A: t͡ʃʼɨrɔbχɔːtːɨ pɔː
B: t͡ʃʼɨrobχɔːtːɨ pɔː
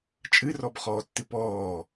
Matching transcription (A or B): A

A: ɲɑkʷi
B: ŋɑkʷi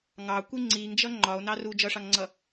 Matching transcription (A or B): B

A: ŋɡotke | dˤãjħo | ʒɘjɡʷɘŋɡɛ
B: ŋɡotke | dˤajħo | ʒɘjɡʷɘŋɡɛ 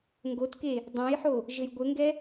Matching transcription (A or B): A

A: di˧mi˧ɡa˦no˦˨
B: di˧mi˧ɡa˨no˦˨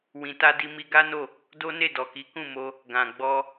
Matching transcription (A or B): A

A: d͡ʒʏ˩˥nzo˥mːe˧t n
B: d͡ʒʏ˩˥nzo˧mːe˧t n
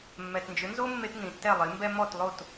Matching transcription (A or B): A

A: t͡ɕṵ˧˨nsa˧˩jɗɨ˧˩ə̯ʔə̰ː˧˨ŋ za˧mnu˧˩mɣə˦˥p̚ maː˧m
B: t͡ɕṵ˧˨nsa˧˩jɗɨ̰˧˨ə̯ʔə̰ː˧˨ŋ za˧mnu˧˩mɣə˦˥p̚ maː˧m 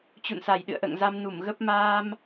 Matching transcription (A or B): B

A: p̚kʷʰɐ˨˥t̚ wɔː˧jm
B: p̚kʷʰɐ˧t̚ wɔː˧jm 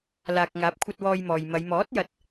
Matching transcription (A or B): B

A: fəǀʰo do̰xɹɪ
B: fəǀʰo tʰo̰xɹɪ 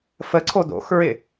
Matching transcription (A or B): A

